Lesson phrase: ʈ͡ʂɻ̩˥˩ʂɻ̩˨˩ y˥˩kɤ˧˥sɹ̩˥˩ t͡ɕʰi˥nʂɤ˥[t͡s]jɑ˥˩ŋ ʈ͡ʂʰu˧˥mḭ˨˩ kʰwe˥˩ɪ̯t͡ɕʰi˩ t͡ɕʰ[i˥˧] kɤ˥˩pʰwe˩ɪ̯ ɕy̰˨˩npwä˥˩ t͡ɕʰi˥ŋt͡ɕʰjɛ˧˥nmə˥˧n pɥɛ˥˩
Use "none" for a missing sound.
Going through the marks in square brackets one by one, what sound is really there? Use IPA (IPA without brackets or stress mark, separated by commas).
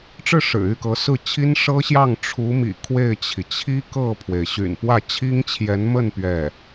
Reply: ɕ, i˥